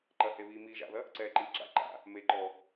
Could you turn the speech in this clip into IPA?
ǃ ɐ h e β iː m iː ʒ a̰ ð ɐ | ǀ ɛː ǃ iː ǁ a̰ ǃ a̰ | m e ǃ ɔ

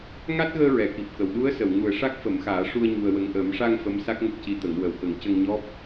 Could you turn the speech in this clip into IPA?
ŋ a˦˥ t̚ ɣ əː˧ ɹ ɛ˨˩˨ k i˨˩ p̚ k ə˨˩˨ w ɗ u˧˥ ə̯ s ə˨˩˨ w ŋ u˨˩ ə̯ ʂ a˦˥ k̚ f ə˨˩˦ m x aː˨˩˦ ʂ u˧ ə̯ ɲ u˧ ə̯ w ə˧ ŋ ʔ əː˨˩˦ m ʂ a˧ ŋ f ə˧˥ m s a˦˥ k̚ ŋ ə˦˥ k̚ c i˧˥ t̪ ə˨˩˦ ŋ w əː˨˩ w k ə˨˩˦ ŋ c ə˧ ŋ ɲ ɔ˦˥ p̚

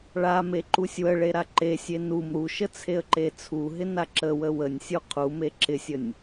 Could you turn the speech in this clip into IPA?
ɭ a m e ǃ u sʲ w ə ɭ e ɾ a ǃ e sʲ e n u m ɾ u ʃ ə t͡sʰ e ə̯ ǃ e t͡sʰ u ɦ ɪ n a ǁ ə w ə w ə nʲ sʲ u qʰ u m e ǁ ɪ sʲ ə nʲ

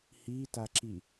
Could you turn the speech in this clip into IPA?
h i t a ǁ i

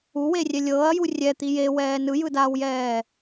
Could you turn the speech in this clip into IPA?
u w e rʲ ɛ lʲ ɤː ɐ̯ j u rʲ ɛ t̪ i j e w ɛː n ɯ j ɯ d aː w j ɛː

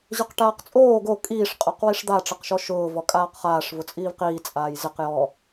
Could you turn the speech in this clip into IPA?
ʑ ʊ q ʈ aː q t͡sʼ oː ɡ o kʼ iː ʂ qʼ ɔ q w i ʂ d̪ a ʈ͡ʂ ɪ q ʃ ɔ ʃ ʊː v ɔ kʼ aː q χ aː ʂ v ʊ t͡sʼ iː v q iː t͡sʼ aː j z ɪ q j ɔ

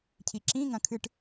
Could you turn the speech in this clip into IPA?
cʰ i ǁ ĩ ŋ ɐ̃ kʰ ɨ ʈ

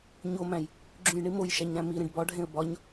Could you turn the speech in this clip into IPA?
ɲ o m æ̃ j | ɡ͡ǁ ũ j ɳ i m o j ʃ æ ɲ ɾ æ̃ m i ɾ ẽ ɖ b ɒ ɖʱ ẽ ə̯ b ɒ ɲ

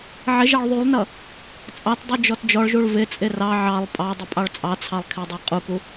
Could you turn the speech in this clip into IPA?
ʕ ɪ ʒ ɑ ɭ ðˤ u lˠ n ʌ | t͡sʼ ɑ t dˤ u d͡ʒ ɔ t d͡ʒ ɔ ɭ ʒ u ɭ v ɪ t͡sʼ ɪ r ɑ ʕ ɑ lˠ pʼ ɑ dˤ ʊ pʼ ɑ ɭ t͡sʼ ɑ t͡sʰ ɑ lˠ kʰ ɪ dˤ ɑ qʼ u k u

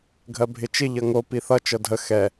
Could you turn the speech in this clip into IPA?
ɡʱ ɜ bʱ ɪ t͡ʃ ɪ ʎ ʌ ŋ o p i θ ʌ t͡ʃ ɤ dʱ ə x ɛ

